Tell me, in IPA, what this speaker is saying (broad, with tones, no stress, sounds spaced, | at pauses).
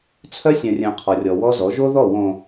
t͡sʰ œ˦ sʲ œ̃˨ rʲ œ̃˨ qʰ ɔ˨ rʲ ɔ˨ w ɔ˦ z ɔ˨˦ ʒ o˦ ð ɔ˦˨ w õ˨